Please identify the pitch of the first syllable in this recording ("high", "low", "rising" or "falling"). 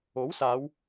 rising